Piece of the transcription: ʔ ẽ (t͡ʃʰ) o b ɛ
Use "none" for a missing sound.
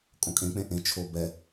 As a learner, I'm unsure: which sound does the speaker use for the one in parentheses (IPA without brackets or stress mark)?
t͡ʃʰ